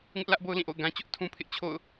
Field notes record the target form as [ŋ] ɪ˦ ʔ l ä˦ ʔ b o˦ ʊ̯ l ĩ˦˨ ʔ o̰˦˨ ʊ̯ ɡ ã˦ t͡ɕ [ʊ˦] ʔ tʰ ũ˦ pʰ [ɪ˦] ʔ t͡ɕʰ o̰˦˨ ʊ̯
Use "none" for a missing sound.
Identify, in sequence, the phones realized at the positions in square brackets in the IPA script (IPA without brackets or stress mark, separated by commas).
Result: ŋ, ʊ˦, ɪ˦